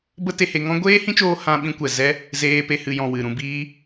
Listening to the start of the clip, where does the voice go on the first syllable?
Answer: high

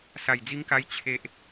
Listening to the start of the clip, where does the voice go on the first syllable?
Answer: low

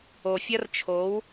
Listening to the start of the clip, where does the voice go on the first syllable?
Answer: low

